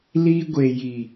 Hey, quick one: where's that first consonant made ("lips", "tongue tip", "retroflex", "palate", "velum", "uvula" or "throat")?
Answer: tongue tip